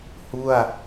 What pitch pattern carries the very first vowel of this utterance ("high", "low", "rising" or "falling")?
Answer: falling